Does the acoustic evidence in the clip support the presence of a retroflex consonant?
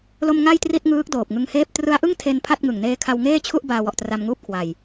no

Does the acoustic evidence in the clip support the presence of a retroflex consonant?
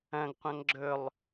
no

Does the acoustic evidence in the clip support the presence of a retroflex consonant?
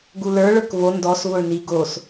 yes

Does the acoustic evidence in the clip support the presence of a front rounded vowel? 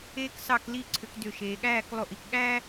yes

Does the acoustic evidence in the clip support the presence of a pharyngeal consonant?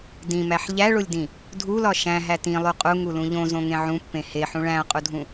yes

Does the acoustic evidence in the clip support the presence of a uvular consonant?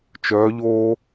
no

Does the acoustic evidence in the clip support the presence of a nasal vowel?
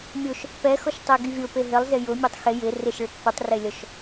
no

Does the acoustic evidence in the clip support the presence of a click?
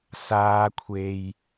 no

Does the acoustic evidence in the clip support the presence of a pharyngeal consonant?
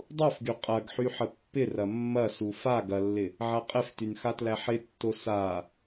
yes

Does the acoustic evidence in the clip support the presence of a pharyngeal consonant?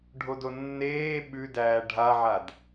yes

